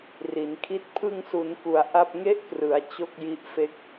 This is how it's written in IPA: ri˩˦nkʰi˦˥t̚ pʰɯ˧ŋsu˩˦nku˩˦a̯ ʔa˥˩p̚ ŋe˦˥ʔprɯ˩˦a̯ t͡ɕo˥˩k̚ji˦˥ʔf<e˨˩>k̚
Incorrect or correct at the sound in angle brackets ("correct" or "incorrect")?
incorrect